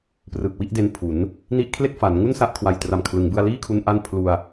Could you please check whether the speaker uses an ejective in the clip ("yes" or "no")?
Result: no